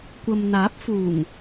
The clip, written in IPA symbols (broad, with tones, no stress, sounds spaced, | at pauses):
kʷ ɐ˨ m n̪ aː˨˥ p̚ f uː˨˩ ŋ